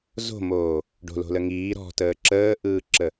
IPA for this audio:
z o̤ m oː | ɖ o̤ l o̤ l ə ŋ iː ɾ ɔ̤ t əː ǁ əː ʔ ɯː ǁ ə

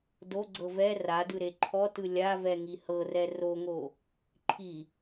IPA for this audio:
d o ɡ͡ǀ ɤ v ɛ r a d ɯ ɾ e ǃʰ ɔ t ɯ lʲ a v ɛ ŋ i h ɤ r ɛ r o ŋ o | ǃʰ i

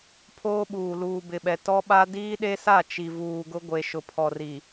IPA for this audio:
pʰ oː˦ ɓ uː˨ l uː˨ b ɪ˨ ɓ ɛ˨ t ɔ˦ ɓ a˦ d iː˦ ɗ e˦ s a˦˨ t͡ʃ i˨ v uː˨ ɡ ʊ˦ ɡʷ e˨ ʃ ʊ˨ pʰ ɔ˨ r i˨

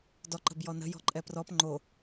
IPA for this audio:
d ɔ ǃ ə̤ b j ɔ n ə̤ j ɔ̤ ǃʼ ɛ p r ɔ p ŋ͡ǃ o

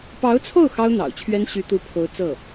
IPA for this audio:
p ɑ˧˥ ʊ̯ t͡sʰ o˥˩ ʊ̯ x ɑ˥ ʊ̯ n̪ ɑ̰˨˩ ʊ̯ t͡ɕʰ ɥ ɛ˥ n ɕ y˧˥ t̪ u˧˥ pʰ o˧˥ ʊ̯ t͡s ɤ˥˩

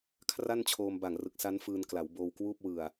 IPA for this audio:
kʰ r a˥˩ n t͡ɕʰ oː˧ m b a˨˩ ŋ r ɯ˨˩ k̚ s a˦˥ n f ɯː˧ n k l a˩˦ w b oː˧ w k w uː˥˩ p̚ w ɯ˨˩ a̯

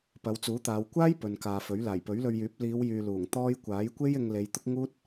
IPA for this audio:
p ɐ˨˧ w t͡s uː˨˥ t̪ aː˨˧ w kʷ aː˥ j p ɵ˨ n k aː˨ f ɵ˨˥ ɥ l aː˨˩ j p ɵ˨˥ ɥ l ɵ˧ ɥ j yː˨˥ p̚ l iː˨˧ w j yː˨ l uː˨˩ ŋ t̪ ɔː˥ j kʷ aː˨˥ j kʷ e˥ j ɪ˧ ŋ l e˨˧ j t̪ ʊ˥ k̚ ŋ uː˥ t̚

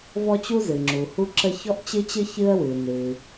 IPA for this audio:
v ɔ˥ t͡ɕ u˥ z ɨ˩ ŋ͡ǁ u˩ h u˥ ǁ ə˥ ç ɔ˥ ʔ t͡ɕ ɨ˥ t͡ɕ ɨ˥ ç ɨ˥ ə̯ w ɨ˩ n ɨ˩

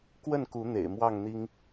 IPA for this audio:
k w ə˥˨ n k u˨˦ n̪ ḛ˨˩ ɪ̯ m w ɑ˥˨ ŋ n̪ i˦ ŋ

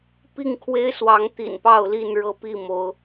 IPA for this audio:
p i˥˨ ŋ kʰ w e˦ ɪ̯ s w ɑ˨˦ ŋ t̪ ḭ˨˩ n p ɑ˥˨ ʊ̯ l i˥˨ n ɻ ɤ˥˨ p i˥˨ m o˨˦ ʊ̯

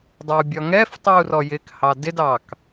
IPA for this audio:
dˤ ɛ u̯ bʲ ɒ ŋ ɛ f tˤ i u̯ r ɔ j ɪ k h ɑ d ɪ d ɑ k

